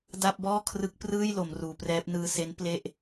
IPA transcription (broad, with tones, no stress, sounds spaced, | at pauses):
d a˥˩ p̚ b ɔː˥˩ kʰ r ɯ˦˥ k̚ p r ɯː˥˩ j l o˩˦ m r uː˩˦ p r ɛː˦˥ p̚ n ɯː˧ s e˦˥ n p l e˥˩ ʔ